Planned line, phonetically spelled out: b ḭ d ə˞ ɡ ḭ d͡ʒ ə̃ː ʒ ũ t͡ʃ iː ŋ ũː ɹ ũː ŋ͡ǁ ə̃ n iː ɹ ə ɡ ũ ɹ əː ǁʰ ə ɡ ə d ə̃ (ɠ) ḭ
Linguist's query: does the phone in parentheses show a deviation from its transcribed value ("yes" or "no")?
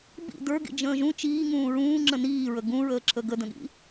no